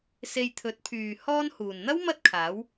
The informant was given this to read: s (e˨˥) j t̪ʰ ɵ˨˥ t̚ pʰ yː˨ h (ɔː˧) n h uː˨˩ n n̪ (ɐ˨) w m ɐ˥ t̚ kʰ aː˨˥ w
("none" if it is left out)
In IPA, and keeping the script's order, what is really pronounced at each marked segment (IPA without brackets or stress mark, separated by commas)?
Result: e˧, ɔː˧, ɐ˥